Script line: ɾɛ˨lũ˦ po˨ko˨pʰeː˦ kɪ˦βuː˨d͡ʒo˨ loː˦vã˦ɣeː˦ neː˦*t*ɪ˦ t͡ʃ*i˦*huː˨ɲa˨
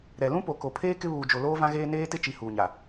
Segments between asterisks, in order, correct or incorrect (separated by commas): correct, incorrect